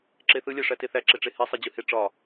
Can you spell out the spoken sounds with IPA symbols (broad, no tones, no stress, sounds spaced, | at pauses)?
ǁ e θ ɯ lʲ æ ʂ æ t e θ æ ǁ e ʈ͡ʂ e h e sˤ e d͡ʑ ɯ h e ʈ͡ʂ ɒ